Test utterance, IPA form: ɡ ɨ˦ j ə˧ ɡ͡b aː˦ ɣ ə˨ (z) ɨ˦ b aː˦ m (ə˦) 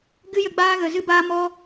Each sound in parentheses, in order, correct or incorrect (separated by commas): correct, incorrect